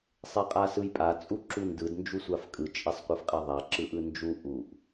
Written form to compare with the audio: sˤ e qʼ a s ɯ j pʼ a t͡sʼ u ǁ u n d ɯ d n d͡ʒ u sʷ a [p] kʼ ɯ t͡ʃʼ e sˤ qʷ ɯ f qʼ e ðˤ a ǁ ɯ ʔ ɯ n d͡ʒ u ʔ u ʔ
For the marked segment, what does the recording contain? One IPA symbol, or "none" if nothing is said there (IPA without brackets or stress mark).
f